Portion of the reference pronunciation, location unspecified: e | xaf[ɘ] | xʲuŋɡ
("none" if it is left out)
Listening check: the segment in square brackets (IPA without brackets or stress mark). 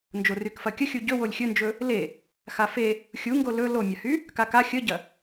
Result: e